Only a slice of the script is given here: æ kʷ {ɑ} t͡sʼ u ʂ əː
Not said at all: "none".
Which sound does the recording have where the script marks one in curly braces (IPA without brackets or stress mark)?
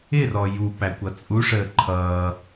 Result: ʌ